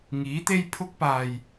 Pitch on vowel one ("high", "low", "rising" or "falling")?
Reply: rising